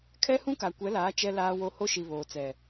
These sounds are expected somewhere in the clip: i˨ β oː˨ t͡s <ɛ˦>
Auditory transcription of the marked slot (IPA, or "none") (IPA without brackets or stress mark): ɛ˨